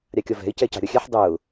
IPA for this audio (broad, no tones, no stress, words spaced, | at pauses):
ɾʲɑkʲɒvɛ̤ɪ̯ cɛcɑ̤ɾʲɒxʲɛħ dˤʊː